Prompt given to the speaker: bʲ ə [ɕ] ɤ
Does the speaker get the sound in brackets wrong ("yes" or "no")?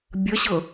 no